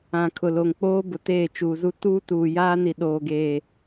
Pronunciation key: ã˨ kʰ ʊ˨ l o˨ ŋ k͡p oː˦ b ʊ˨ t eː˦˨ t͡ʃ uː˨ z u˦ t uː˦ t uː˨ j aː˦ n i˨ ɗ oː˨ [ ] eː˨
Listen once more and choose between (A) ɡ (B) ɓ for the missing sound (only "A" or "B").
A